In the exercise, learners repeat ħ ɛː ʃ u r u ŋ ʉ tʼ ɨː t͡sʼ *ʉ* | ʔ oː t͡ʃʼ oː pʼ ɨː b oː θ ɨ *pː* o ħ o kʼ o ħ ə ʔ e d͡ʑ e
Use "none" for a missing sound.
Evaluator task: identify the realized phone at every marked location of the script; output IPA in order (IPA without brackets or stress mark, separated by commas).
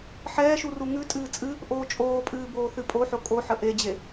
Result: ɨ, pʼ